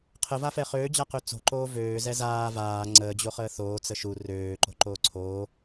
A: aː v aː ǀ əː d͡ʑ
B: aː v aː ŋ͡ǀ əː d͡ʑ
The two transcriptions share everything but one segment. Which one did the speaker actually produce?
B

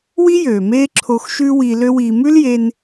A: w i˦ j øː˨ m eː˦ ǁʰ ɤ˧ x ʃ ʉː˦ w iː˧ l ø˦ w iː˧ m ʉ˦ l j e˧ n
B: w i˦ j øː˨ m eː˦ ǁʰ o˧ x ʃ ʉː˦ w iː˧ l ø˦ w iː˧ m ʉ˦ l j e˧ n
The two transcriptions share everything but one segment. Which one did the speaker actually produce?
B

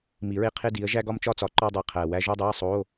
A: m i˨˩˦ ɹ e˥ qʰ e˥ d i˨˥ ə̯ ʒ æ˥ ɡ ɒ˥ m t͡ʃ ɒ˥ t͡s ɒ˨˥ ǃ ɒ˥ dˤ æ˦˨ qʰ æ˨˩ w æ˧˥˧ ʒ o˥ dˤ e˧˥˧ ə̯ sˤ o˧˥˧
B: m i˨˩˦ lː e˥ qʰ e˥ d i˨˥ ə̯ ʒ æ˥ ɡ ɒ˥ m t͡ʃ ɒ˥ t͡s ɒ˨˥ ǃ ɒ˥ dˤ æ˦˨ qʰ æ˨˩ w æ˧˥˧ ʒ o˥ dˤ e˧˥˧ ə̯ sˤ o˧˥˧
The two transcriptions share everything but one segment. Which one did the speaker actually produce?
A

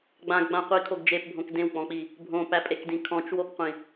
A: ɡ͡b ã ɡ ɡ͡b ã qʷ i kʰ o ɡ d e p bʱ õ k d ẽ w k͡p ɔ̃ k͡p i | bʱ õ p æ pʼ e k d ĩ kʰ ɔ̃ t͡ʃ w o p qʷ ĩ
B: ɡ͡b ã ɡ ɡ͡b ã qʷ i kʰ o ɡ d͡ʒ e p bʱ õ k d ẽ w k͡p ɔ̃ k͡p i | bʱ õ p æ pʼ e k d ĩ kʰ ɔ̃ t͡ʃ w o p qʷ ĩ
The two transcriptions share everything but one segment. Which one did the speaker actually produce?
B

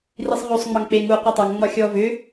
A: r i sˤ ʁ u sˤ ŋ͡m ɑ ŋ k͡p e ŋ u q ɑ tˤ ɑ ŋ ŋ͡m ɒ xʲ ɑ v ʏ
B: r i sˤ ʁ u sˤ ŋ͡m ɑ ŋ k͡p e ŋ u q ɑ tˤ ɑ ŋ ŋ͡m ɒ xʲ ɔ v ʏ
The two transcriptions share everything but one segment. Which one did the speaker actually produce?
B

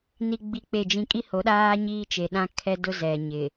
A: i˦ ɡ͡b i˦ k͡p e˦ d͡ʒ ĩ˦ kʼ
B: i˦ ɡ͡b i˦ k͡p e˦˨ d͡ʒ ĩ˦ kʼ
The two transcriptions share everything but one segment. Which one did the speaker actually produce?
B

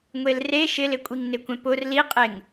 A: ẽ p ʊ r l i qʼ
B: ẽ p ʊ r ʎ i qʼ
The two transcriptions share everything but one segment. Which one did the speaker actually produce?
A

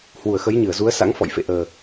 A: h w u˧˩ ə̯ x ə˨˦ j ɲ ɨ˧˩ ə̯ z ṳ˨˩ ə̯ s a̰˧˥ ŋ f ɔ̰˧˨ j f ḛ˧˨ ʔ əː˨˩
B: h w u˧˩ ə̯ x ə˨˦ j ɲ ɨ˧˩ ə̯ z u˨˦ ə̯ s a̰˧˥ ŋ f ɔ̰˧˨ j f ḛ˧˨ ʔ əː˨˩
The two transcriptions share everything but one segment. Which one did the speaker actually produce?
B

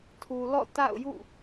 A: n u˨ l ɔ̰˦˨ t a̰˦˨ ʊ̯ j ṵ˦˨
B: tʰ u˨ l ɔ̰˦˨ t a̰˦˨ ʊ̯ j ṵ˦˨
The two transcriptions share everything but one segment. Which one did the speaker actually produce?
B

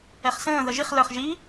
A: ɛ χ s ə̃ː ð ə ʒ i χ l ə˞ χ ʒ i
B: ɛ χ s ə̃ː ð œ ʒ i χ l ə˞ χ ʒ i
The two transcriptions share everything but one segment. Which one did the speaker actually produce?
A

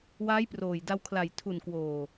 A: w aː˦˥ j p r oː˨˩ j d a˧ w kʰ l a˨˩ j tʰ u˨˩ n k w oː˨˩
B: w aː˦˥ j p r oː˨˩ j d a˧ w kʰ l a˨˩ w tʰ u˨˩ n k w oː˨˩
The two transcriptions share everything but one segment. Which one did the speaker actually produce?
A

